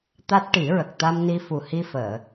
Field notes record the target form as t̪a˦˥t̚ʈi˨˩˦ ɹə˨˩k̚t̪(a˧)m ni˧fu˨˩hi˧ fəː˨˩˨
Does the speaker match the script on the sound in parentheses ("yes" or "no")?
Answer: yes